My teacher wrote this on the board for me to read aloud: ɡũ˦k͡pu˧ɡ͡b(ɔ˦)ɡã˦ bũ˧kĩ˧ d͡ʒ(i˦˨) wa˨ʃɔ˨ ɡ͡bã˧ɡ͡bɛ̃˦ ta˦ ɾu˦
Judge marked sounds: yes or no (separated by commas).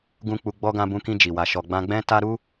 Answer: yes, no